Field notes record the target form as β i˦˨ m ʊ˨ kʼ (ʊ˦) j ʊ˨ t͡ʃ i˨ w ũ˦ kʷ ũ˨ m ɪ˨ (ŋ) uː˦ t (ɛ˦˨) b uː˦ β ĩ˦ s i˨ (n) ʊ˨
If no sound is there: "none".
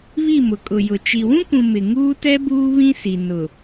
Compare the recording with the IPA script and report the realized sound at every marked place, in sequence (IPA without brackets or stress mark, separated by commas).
ʊ˨, ŋ, ɛ˦, n